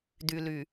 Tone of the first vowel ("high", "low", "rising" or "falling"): low